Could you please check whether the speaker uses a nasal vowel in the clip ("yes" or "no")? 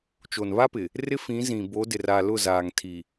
yes